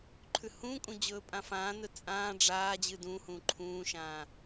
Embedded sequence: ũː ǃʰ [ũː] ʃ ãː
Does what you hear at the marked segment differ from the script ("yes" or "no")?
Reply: no